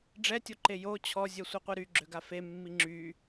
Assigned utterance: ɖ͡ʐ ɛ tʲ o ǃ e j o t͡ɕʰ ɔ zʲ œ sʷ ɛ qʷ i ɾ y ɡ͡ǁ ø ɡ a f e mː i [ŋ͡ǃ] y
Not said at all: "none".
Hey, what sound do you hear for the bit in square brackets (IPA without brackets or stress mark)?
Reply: ŋ͡ǁ